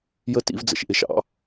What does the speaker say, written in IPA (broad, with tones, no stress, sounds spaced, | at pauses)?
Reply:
j ə˦˥ t ḭ˨˦ v d͡z ə̰˨ ʃ ʔ ɪ˨˦ ʃ ɑ̰˨˩˦